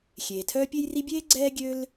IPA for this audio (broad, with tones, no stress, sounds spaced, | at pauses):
xʲ eː˩ tʰ œː˥ pʲ e˥ j r i˥ bʲ eː˥ ɡ͡ǀ ɛː˥ ɡʲ ø˥ l